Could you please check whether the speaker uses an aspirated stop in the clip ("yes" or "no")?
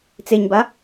no